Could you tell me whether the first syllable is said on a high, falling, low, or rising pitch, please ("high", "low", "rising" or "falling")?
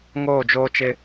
falling